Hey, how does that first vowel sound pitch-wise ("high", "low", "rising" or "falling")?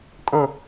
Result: falling